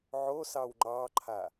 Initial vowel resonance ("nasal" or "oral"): oral